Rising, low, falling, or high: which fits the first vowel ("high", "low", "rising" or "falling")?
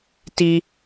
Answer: high